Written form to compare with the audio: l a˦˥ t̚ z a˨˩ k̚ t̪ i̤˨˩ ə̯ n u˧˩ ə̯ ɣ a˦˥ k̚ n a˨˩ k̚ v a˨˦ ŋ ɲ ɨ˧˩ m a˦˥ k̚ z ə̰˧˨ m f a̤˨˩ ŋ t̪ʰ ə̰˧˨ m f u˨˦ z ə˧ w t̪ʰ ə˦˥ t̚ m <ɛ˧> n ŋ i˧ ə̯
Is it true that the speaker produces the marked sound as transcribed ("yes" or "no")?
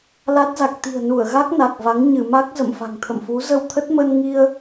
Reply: no